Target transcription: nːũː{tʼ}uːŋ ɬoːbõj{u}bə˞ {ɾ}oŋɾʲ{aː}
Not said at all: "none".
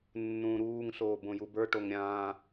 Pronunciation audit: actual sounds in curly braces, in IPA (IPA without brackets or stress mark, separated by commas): ɾ, u, ʈ, ãː